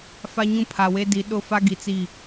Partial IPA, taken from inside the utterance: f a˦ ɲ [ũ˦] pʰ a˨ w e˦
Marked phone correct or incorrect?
correct